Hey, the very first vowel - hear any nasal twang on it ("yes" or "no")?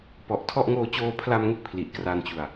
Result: no